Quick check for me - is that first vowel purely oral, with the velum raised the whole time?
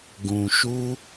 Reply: no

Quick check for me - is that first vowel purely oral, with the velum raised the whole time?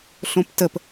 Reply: no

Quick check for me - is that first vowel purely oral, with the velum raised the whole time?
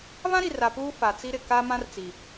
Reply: no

